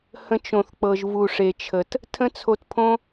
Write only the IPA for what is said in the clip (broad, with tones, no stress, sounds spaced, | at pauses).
h ə̃˧ t͡ʃ õ˨ θ k͡p ɤ˨ ʒ v u˨ ʂ e˨ t͡ʃʰ ə˨ t | tʰ ə̃˦ t͡sʰ o˧ t pʰ õ˦